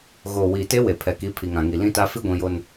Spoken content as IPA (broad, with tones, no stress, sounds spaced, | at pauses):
ɣ oː˨ w iː˨ t e˦ w e˨ pʰ ɛ˨ k i˨˦ pʰ i˨ ŋ ã˨ ŋ i˨ l ĩ˦ t a˦ f i˦ ɡʷ ĩ˨ j o˨ n